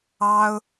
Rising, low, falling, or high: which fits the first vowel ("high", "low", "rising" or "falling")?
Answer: high